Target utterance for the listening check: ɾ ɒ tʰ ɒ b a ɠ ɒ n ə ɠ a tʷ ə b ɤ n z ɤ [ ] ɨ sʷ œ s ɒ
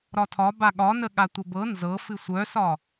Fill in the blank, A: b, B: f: B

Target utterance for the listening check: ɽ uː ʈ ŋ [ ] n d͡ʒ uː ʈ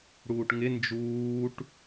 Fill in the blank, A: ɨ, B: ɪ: B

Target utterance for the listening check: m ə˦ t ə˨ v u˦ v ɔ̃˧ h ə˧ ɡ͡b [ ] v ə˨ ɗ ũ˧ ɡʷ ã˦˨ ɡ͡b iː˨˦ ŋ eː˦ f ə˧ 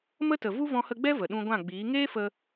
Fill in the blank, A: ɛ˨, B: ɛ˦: B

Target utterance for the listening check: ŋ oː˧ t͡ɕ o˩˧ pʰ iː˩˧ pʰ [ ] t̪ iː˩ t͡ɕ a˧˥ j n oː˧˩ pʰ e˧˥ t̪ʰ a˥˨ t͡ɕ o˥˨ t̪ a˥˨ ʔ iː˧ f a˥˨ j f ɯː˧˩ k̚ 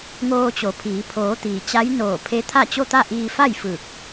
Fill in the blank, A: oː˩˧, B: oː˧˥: A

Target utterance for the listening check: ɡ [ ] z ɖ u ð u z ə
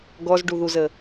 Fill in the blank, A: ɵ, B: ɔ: B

